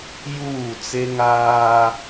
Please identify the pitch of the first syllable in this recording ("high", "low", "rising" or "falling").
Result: falling